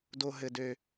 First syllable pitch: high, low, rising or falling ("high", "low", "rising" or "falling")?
high